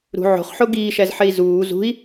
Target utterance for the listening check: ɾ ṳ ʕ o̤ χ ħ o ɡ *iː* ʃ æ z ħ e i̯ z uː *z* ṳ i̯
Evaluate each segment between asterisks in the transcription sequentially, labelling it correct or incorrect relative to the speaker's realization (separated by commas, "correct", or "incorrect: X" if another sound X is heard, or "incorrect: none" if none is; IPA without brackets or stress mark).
correct, correct